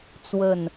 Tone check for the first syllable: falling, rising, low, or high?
falling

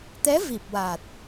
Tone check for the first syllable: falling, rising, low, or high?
rising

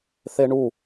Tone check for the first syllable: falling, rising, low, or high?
high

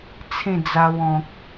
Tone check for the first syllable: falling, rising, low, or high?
falling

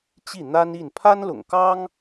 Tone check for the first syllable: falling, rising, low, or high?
falling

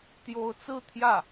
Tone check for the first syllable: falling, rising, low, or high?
rising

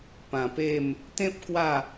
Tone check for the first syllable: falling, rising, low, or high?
low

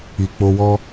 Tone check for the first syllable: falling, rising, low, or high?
low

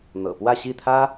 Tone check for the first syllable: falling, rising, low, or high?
low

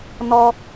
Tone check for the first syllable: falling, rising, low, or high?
high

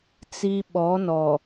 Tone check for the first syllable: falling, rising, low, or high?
high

